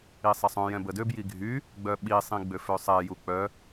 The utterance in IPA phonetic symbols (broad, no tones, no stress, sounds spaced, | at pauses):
i sˤ ɛ sˤ œ̃ j ɛ̃ b ə d ø b j i ɡʱ y | ɡ͡b œ ɓ i sˤ ĩ ɡ͡b ø f ø sˤ ɛ j u k͡p œ